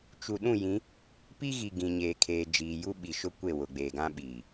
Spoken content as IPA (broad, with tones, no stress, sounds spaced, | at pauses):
t͡ʃ u˨ ɗ ũ˦˨ j ĩ˨˦ | p i˦ ɣ i˨ ɡ ĩ˨ ɲ eː˨ kʰ eː˨ d͡ʒ iː˨ j u˦ ɓ i˨ ʃ ʊ˦ kʷ e˦˨ w ʊ˨ ɡ͡b eː˨ ɡ ã˦ ɓ iː˨